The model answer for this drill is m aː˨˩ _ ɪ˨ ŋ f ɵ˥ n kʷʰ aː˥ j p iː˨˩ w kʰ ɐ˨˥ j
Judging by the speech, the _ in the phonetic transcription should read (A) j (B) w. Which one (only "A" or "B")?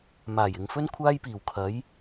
A